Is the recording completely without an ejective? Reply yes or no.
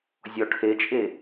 no